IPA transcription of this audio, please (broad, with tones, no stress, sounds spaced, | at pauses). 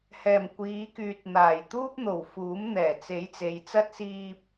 h ɛː˨˩ m kʷ iː˨˧ k yː˨ t̚ n̪ aː˨˩ j t̪ uː˥ p̚ n̪ o˨˩ w f uː˨˥ m n̪ ɛː˨˩ t͡s e˨˥ j t͡s e˨˧ j t͡s ɐ˥ t̚ s iː˧ p̚